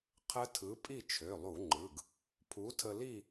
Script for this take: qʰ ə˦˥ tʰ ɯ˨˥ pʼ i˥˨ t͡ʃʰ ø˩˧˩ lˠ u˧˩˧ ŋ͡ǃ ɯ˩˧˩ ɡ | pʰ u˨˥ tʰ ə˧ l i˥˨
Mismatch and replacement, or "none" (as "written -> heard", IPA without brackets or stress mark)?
none